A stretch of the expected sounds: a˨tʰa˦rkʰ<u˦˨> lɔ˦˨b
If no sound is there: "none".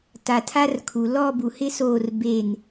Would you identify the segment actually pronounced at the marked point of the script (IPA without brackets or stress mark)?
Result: u˨